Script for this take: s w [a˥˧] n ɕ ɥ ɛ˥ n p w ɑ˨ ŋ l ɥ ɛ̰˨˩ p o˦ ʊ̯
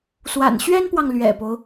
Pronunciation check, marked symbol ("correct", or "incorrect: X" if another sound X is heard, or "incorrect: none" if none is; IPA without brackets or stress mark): incorrect: a̰˨˩